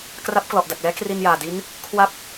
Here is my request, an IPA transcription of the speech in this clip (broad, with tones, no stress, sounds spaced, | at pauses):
k r a˦˥ p̚ k l ɔ˨˩ ʔ d a˨˩ k̚ l ɛː˦˥ k r i˧ n j aː˨˩ d i˦˥ n | kʰ w a˦˥ p̚